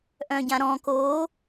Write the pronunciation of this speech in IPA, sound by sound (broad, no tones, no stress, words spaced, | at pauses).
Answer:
ʔœ̃ɟãɾɔ̃ koː